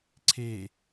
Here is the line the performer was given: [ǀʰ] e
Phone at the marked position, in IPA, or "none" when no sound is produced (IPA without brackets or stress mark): ǀʰ